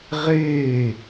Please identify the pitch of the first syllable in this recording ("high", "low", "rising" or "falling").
falling